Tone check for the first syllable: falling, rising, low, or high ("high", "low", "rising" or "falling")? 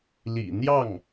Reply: low